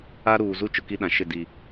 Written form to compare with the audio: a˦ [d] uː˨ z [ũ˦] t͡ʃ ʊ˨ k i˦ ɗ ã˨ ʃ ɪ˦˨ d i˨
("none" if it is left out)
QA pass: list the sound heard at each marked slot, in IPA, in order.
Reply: ɾ, u˦

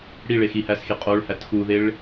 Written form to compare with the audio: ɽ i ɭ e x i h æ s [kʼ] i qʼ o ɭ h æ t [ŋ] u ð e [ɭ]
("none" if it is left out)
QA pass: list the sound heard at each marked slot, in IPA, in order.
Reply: x, x, ɭ

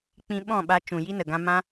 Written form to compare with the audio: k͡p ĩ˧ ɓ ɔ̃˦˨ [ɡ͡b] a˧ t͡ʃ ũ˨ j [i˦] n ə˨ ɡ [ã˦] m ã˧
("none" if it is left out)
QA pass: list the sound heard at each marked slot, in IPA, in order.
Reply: ɓ, i˦, ã˧

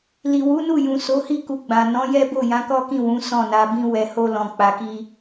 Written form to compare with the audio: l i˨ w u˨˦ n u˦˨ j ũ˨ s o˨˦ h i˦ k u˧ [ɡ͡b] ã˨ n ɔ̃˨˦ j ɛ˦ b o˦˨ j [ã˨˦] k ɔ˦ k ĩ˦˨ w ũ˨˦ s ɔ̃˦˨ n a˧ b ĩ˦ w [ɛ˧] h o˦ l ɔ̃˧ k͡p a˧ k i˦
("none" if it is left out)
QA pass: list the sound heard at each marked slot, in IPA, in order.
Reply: ɡ͡b, ã˨˦, ɛ˧

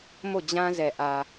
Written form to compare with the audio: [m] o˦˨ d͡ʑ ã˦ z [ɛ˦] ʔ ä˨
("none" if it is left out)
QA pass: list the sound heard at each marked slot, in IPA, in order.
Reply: m, ɛ˨

